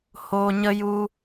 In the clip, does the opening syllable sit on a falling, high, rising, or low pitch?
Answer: low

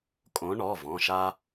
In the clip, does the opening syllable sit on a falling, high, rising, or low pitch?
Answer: rising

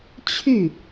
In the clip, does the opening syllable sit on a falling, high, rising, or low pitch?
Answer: falling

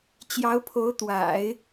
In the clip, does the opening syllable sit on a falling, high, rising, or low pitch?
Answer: rising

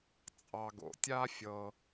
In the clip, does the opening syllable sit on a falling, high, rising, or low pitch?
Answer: low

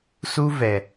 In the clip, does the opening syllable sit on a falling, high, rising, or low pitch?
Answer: high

